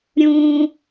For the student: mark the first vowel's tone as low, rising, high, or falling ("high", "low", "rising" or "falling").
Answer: high